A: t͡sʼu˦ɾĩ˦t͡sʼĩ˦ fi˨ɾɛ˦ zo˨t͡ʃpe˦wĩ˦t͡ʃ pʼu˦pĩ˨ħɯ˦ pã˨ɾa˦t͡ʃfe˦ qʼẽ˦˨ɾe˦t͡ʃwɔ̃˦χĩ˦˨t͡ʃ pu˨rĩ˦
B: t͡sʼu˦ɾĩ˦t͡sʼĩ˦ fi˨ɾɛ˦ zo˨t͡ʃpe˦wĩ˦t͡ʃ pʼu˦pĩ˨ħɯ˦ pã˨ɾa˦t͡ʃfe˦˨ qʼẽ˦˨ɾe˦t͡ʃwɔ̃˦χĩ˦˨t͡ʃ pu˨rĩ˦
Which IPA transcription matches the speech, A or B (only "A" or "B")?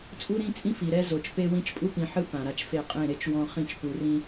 B